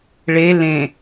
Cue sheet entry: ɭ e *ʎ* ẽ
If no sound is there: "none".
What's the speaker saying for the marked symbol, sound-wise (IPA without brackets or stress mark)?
l